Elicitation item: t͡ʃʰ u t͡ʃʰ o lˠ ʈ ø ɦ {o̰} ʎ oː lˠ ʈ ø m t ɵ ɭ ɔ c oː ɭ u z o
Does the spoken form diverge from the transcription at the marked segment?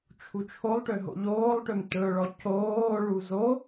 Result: no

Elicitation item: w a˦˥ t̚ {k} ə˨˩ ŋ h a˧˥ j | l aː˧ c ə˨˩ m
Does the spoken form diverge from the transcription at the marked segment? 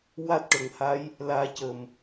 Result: yes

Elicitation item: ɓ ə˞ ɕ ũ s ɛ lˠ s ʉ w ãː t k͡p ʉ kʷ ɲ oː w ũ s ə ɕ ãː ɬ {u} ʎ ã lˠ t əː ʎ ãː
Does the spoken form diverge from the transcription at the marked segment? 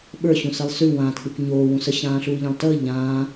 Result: yes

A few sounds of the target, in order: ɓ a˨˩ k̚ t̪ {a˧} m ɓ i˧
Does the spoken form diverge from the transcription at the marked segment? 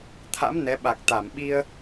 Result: yes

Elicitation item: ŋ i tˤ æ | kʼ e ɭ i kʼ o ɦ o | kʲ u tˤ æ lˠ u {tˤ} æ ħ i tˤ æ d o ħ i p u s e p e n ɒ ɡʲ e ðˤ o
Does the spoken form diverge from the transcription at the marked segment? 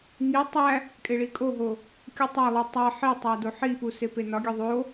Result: no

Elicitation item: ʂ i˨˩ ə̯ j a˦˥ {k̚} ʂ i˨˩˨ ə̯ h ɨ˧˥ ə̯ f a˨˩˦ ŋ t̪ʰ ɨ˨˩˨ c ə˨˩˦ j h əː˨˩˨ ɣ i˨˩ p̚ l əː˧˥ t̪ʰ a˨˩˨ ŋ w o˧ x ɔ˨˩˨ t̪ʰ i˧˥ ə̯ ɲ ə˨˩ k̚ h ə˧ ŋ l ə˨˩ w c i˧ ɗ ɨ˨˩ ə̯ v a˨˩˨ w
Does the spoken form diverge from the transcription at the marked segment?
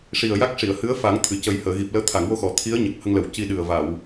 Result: no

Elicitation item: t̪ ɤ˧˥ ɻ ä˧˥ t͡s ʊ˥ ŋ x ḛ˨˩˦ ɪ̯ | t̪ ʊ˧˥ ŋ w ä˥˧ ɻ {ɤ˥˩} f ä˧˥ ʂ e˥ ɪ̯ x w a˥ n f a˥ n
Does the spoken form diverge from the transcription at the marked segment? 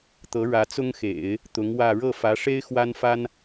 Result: no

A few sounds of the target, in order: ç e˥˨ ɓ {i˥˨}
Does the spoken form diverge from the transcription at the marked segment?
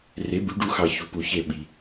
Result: yes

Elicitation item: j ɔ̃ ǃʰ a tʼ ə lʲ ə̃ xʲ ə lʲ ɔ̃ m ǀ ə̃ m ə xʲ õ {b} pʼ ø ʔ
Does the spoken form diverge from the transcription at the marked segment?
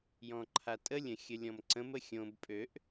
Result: no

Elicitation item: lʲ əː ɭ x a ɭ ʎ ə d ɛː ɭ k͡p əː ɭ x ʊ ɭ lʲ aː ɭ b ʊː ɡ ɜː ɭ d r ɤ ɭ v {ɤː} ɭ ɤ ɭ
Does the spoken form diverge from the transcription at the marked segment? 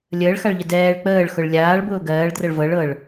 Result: yes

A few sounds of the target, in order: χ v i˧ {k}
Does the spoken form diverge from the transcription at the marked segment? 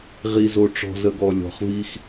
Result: yes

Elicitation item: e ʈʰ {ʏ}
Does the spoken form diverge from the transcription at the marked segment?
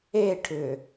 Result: no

